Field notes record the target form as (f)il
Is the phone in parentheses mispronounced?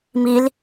yes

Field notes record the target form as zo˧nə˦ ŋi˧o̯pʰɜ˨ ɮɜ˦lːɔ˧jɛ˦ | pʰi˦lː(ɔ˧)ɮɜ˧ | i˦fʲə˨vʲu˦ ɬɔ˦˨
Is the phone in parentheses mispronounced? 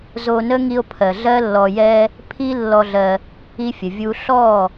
no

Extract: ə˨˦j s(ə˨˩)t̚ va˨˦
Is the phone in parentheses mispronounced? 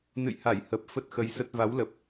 yes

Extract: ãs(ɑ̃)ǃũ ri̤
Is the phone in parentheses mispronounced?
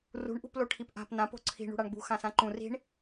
yes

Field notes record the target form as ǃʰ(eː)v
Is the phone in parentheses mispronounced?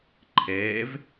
no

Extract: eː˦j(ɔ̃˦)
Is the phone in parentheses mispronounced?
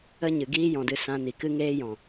yes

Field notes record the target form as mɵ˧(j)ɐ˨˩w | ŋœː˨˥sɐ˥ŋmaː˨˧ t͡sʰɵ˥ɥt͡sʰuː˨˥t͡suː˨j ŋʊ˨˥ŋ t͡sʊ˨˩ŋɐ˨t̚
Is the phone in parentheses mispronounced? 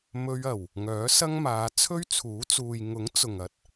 yes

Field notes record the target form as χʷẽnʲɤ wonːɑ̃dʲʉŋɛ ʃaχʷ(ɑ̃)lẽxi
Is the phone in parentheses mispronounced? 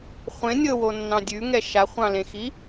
no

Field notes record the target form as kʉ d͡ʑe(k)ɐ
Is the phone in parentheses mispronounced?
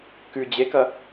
no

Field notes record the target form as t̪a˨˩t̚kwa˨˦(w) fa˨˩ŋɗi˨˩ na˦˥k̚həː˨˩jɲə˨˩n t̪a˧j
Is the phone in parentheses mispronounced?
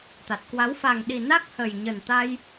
no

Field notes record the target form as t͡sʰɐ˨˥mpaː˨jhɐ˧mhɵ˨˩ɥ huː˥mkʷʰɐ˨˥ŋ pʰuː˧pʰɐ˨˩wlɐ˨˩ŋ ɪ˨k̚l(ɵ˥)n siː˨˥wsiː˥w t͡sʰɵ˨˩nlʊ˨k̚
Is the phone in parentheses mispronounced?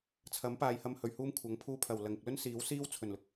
no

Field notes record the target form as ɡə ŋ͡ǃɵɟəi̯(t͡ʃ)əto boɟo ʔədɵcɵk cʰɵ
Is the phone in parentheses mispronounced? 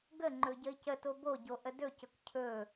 yes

